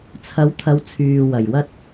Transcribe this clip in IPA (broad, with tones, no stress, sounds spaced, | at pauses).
t͡sʰ ɐ˨˥ w t̪ʰ ɐ˨ w t͡sʰ yː˨ w ɐ˨˩ j w ɐ˥ t̚